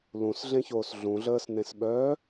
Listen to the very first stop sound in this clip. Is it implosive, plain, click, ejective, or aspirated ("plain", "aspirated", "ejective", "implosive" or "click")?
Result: implosive